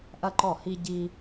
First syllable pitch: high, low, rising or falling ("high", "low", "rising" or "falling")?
high